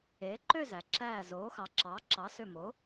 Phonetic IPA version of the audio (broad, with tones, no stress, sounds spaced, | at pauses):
eː˩˥ ǃ ø˥˨ z æ˩ ǁ æː˧˩ z oː˩˥ x ɑ˩˥ ǁ ɑː˩˥ ǁ ɑ˩˥ s ø˧˩ m o˩˥